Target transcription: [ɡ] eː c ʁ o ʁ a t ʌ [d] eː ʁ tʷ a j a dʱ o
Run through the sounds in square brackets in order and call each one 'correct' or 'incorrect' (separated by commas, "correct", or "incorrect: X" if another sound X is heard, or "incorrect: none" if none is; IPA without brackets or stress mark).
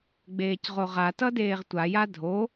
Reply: incorrect: ɡ͡b, correct